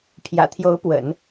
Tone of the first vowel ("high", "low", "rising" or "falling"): low